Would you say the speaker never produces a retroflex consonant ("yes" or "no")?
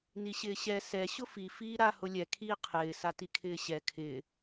yes